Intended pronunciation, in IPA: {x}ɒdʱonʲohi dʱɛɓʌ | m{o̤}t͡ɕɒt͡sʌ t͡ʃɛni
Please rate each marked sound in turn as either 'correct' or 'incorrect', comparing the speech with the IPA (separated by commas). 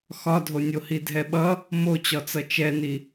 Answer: correct, incorrect